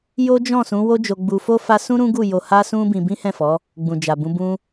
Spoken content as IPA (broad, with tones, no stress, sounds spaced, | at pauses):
j o˦ d͡ʒ ɔ̃˦˨ s ũ˨˦ w o˦ d͡ʒ o˧ ɡ͡b u˧ f o˦ f a˦ s ũ˦ ɾ ũ˦ ɡ u˦˨ j o˧ h a˦ s ũ˦ b ĩ˧ b ĩ˦ h ɛ̃˦˨ f ɔ˨˦ | ɡ͡b ũ˨ d͡ʒ a˨ b ũ˧ b ũ˧